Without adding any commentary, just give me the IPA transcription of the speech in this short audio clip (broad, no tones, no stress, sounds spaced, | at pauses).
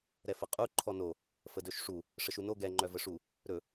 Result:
ɾ ɛ f ə qʼ u ǃʰ ɔ n o | f ə d ɵ ʃ ʂ u | ʂ ə ʃ u n o ɡ ɛ ŋ͡ǃ œ v ə ʂ u | ɾ ɵ